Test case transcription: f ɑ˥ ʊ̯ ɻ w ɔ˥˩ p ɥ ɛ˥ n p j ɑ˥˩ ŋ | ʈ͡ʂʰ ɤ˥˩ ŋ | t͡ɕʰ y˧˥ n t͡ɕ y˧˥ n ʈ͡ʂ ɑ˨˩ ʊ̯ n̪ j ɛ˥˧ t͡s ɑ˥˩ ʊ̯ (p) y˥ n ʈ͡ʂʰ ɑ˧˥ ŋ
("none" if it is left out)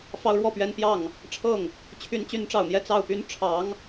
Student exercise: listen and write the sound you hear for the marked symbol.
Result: p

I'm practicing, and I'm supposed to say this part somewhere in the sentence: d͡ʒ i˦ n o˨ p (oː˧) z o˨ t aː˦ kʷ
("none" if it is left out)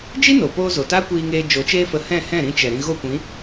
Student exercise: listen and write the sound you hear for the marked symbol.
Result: oː˧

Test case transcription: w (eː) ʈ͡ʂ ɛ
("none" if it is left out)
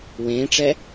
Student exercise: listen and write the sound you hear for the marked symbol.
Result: ẽː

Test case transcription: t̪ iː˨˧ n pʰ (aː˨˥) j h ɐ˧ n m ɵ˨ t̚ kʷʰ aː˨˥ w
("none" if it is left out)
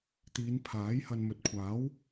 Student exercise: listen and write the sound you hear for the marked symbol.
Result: aː˨˥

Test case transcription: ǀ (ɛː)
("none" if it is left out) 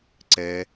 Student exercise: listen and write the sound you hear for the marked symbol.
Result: ɛː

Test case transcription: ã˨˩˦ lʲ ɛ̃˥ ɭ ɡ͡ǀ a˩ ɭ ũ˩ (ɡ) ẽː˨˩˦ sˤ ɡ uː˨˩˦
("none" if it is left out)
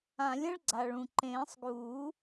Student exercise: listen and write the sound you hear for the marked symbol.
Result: ǃ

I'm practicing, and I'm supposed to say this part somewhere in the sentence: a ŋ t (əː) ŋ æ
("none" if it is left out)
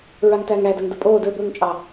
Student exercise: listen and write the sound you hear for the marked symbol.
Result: æː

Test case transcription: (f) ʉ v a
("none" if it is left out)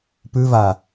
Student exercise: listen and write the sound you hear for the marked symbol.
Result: p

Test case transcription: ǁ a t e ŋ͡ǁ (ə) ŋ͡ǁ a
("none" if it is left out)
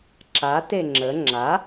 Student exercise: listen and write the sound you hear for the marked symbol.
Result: ə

